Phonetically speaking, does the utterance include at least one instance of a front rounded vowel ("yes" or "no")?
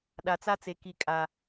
no